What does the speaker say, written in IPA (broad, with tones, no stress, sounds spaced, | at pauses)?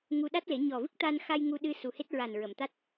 ŋ u˧ ɗ a˦˥ t̚ l e˨˩˦ ɲ ɔ˨˩ v ɨ˦˥ k̚ t̪ a˧ n x a˧ j ŋ u˧ ɗ ɨ˧ s u˨˩ h e˦˥ t̚ ɹ a˨˩ n ɹ ə˨˩˨ m t̪ a˦˥ t̚